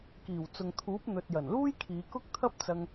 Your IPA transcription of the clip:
k iː˨˩ w t͡s ʊ˨ ŋ t̪ʰ uː˨˥ p̚ n̪ ɵ˨ t̚ j ɐ˨˩ n l uː˥ j kʰ iː˨˧ k ʊ˥ k̚ t̪ʰ ɐ˥ p̚ t͡s ɐ˧ ŋ

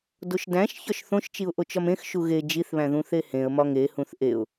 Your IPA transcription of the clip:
d o ʃ d æ̃ ʃ ç ɒ ʃ θ õ ʃ t͡ʃ i ʊ̯ ʔ o t͡ʃ ɒ m ẽ x ʃ u ɣ e d͡ʒ i θ β æ̃ ð ũ θ e h ẽ ə̯ m ɒ ŋ e h ũ θ ʔ e ʊ̯

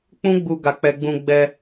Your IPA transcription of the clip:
k͡p ũ˦ ɡ͡b u˧ ɡ a˧ k͡p ɛ˧ ɡ͡b ũ˧ ɡ͡b ɛ˧

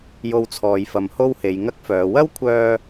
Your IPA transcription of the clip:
j o˧ w t͡sʰ ɔː˨ j f ɐ˨ m h o˥ w h e˨˧ j ŋ ɐ˥ k̚ f œː˨˧ w ɐ˥ w kʷʰ œː˧

